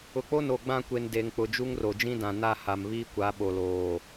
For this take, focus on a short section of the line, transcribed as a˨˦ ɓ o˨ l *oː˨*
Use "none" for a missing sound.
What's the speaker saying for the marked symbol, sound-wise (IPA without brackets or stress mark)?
oː˨